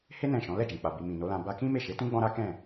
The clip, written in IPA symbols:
h e˦ n ɛ̃˦˨ ʃ ɔ̃˨˦ l ɛ˦˨ d͡ʒ ɛ̃˨ k͡p a˨ b i˨ m ĩ˨ n o˨˦ l ã˧ b a˦ k ĩ˦ m e˦˨ ʃ e˨˦ t ũ˦ ɡ͡b ɔ̃˦ ɾ a˦ k ɛ̃˦˨

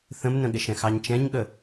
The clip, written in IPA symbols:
θ ə̃ m n ə̃ ɠ ɪ ʃ ɛ̃ x ɑ ɲ t͡ʃ ɛ̃ ɲ ɠ ə

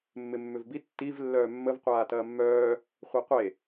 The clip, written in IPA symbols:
mː ɪ mː ʏ v b i tː i v lː œː mː ə v qʷ aː t ɐː mː œː | χʷ e qʷ e

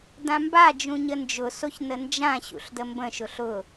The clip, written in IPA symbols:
d ã m b a d͡ʒ ũ ɲ ə n d͡ʒ ʊ s o ç n ə n d͡ʒ ã ɕ ṵ ɬ d ə m b ə̃ ʃ ʊ ɬ ʊ

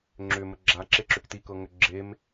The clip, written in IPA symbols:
ŋ͡ǁ ʏ m ə ɡ͡ǁ a ǁ e ǁ ʏ k t i k ɤ ŋ ʏ ɡ͡ǁ e m

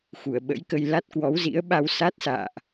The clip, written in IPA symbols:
x u˧˩ ə̯ ɓ ə̰˧˥ j k ə˧ j l a˦˥ t̚ k w ɔ˨˦ w z ḭ˧˥ ə̯ ɓ a˧ w s a˦˥ t̚ s a̰ː˧˨ ʔ

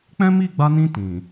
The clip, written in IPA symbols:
k͡p ɛ̃˦ m i˦˨ ɡ͡b a˧ n ĩ˧ t ĩ˨

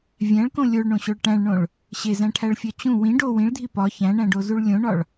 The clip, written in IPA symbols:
vʲ æ̃ ɭ k õ lʲ o ɭ ɳ õ ɕ o ɭ ʈ æ̃ ɭ ɳ õ ɭ | ɕ e z æ̃ ʈʰ æ ɭ fʲ ɒ t͡ɕ ũ w ĩ ɖ o w ĩ ɭ dʱ i p ɒ ç æ̃ ɳ æ̃ ɖ o z u ɭ lʲ õ ɳ ɒ ɭ

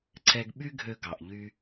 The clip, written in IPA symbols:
ǀ ɛ˧ ɡ ɓ y˥ ɡʱ ø˧ ɡ ɑ˩ ʔ ʎ y˧

